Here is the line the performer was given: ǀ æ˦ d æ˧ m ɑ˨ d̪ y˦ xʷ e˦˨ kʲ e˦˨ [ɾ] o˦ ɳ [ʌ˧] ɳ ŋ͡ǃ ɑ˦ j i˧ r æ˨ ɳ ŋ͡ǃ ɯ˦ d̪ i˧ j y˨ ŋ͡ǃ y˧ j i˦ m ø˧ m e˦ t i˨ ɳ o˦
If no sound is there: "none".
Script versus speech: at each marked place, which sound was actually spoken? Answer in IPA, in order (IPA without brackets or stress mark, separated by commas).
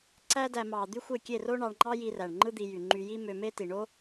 r, ɑ˧